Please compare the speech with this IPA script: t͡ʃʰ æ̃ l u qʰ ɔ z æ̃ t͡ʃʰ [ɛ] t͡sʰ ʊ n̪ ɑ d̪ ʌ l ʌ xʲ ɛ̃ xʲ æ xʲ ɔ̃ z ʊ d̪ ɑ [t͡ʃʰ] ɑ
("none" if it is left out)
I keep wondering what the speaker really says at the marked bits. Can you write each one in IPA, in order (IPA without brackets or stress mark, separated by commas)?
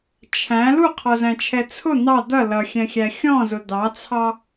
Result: ɛ, t͡sʰ